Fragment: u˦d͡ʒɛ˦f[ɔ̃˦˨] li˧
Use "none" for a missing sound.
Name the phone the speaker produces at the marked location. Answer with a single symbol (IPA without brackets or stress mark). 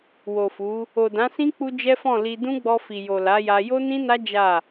ɔ̃˦˨